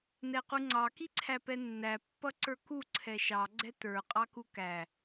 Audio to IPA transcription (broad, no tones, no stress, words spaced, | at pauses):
nɛquŋ͡ǀɑ kiǀʰæpɛnːæ pːʌǀə˞ku ǀʰɛʃɑ ɡ͡ǀɛtə˞ qʼɑkukæ